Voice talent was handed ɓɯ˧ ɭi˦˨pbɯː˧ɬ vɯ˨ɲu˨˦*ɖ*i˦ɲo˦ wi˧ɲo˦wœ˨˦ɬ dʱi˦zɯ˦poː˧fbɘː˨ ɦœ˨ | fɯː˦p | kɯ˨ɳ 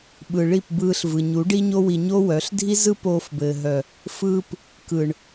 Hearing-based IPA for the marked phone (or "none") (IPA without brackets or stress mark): ɖ